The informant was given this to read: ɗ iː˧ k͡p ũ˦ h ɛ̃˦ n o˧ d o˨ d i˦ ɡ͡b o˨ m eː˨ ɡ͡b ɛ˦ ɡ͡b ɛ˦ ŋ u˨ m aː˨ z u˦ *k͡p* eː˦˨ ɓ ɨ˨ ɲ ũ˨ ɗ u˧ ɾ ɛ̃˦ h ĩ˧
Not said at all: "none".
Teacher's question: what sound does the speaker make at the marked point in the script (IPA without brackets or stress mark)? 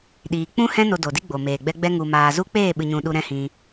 k͡p